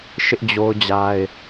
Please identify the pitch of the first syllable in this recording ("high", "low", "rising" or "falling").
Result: high